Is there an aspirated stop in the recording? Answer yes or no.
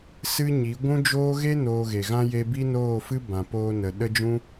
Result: no